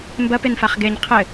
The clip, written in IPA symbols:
m b ɐ p e n f a χ ɡ e ɲ qʰ ɘ

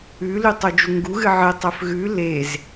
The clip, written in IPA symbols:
ʉ l ʉ tˤ u d͡ʒ u ŋ ɡ u ɣ ɨ ʕ ɨ tˤ ɵ f ɣ ʉ l e z

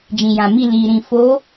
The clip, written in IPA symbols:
d͡ʒ ĩ˨ j ã˨ m i˦˨ l iː˨ ɾ ĩ˨ f o˨˦

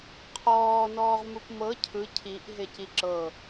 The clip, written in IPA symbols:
qʰ ɔː n ɔː ʁ m u p m ɤ cʰ ɯ cʰ i ʔ ɦ e c i ǁ ɤ

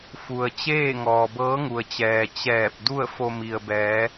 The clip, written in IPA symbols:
f u˩ ə̯ t͡ɕ eː˥˨ ŋ ɔː˩ b ɤː˧˥ ŋ u˩ ə̯ t͡ɕ ɛː˩ t͡ɕ ɛː˧˩ p̚ d u˥˨ ə̯ f o˧ m i˩ ə̯ b ɛː˩˧

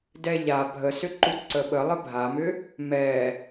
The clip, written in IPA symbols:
d ɛ ʎ a bʱ ə s ʏ ǃ u ǀ ə ɓ ə lˠ ə bʱ a m ʏ | m ɛ

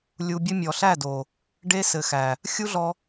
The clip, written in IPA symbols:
lʲ u˧ bʲ ɘ˦ mʲ ɔ˨ ɬ æ˦˨ d o˨ | ɖ e˦ s ɘ˨ x æ˨ | xʲ u˦ ɮ ɔ˧

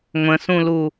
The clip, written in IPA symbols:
ŋʷ ə̃ s ũ l u

